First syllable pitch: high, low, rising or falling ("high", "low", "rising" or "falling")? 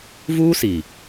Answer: high